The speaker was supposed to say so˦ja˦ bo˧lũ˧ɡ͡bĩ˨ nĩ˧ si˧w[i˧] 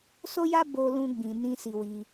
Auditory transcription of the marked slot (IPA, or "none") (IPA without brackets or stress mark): i˧